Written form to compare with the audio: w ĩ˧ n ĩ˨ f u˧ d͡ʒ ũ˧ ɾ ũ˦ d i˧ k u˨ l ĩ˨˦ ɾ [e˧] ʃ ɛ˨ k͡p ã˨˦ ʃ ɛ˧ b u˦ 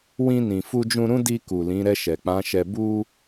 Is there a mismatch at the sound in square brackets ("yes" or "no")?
yes